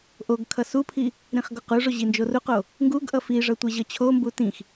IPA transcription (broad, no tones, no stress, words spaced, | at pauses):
ʔoɡkʰʌ supʰi | ɾĩχɡoquʐo ʑind͡ʒoruqo | ŋɡuɡ ʔʌfiʐʌ tʷeʑʌt͡ɕʰombu tĩx